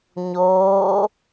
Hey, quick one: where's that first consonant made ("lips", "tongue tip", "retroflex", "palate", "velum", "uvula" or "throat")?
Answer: palate